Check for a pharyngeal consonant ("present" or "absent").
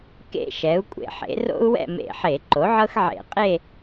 present